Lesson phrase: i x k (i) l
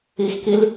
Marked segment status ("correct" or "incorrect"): correct